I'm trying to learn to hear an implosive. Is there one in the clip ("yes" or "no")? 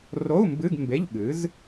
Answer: yes